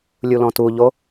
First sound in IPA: lʲ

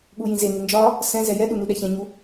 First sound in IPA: ɠ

